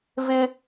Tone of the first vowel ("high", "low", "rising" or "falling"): high